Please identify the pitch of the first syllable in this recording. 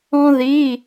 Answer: high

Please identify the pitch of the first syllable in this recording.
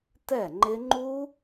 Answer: falling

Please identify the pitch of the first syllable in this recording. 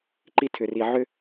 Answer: high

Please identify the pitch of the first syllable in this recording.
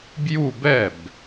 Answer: falling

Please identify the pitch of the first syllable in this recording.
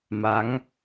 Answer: rising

